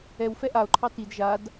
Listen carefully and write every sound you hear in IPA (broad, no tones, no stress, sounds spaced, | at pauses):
ɛ w f ɛ ʔ a o̯ ǃʰ ɑ t i d ʒ a d